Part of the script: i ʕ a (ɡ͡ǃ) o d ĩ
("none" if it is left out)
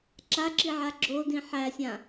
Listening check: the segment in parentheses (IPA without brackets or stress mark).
ɡ͡ǁ